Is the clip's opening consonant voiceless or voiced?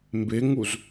voiced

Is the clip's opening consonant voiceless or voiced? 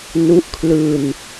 voiced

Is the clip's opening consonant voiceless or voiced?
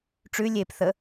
voiceless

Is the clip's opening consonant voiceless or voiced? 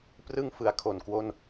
voiceless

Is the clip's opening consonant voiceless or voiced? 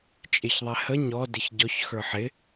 voiceless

